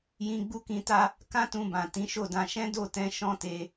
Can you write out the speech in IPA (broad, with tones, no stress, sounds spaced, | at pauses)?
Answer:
j ĩ˧ ɡ͡b u˦ k ĩ˧ t a˦ | k ã˦ t ũ˧ b ã˨ t ĩ˨˦ ʃ o˦˨ d ã˧ ʃ ɛ̃˦ d o˦˨ t ɛ̃˧ ʃ ɔ̃˦ t e˧